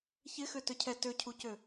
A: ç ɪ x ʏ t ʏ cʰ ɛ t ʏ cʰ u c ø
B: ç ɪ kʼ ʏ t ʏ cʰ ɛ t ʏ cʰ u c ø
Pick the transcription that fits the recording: A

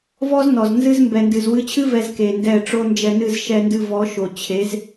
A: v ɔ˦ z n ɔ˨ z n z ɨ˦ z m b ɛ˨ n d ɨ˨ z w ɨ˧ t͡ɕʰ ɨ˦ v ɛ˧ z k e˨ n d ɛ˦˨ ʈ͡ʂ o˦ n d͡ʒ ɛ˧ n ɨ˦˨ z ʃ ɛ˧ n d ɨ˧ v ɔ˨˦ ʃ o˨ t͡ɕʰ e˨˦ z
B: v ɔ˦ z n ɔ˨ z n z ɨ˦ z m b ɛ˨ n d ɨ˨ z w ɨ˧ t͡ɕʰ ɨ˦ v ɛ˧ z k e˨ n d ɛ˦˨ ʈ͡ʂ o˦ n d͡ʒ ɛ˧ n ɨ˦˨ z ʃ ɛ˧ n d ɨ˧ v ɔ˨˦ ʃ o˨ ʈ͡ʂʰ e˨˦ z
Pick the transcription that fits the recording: A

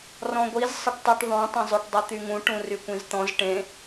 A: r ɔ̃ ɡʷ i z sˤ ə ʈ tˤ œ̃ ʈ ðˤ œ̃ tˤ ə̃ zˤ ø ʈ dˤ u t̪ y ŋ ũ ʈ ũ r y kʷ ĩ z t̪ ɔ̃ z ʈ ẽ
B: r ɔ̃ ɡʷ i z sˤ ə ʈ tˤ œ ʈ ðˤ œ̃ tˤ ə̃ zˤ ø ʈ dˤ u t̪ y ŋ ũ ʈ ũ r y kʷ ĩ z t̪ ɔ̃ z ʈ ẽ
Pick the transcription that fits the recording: B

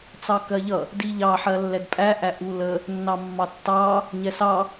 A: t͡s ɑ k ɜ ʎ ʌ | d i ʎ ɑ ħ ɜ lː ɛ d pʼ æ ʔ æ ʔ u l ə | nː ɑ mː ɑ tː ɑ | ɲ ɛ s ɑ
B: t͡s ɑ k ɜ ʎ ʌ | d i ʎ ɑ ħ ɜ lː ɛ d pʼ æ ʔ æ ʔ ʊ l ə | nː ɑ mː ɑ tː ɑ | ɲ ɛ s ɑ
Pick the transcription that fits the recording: A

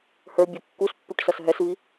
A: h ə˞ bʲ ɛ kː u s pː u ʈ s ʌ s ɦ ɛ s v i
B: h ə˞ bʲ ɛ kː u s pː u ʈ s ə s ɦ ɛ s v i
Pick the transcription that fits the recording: A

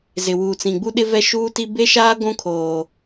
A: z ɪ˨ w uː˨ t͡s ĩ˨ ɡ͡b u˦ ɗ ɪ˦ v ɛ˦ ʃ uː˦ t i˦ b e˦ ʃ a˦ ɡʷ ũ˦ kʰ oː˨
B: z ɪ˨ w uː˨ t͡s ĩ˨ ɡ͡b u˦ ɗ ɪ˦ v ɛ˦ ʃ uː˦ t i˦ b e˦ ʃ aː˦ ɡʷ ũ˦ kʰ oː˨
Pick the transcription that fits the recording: B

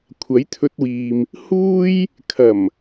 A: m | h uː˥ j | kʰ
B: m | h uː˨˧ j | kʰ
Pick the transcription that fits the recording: A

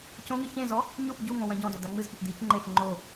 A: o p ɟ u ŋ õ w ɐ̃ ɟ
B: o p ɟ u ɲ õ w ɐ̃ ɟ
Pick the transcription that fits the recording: A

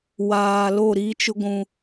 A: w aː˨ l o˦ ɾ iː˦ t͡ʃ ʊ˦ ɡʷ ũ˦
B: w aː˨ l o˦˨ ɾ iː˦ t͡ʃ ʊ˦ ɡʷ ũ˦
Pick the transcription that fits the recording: B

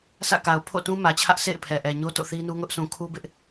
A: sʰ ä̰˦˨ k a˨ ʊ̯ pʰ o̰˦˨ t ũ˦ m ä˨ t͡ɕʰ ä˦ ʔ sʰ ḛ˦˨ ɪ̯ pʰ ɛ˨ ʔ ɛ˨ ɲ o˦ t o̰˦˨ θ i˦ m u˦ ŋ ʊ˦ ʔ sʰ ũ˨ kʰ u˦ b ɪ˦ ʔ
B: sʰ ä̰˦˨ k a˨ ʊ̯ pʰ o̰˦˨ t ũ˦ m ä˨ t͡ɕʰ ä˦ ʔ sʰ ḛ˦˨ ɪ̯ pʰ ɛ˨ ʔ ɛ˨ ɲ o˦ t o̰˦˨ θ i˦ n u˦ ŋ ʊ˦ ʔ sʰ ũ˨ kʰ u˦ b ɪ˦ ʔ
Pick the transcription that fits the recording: B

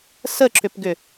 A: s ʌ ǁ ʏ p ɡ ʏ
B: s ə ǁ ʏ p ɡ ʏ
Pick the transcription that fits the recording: B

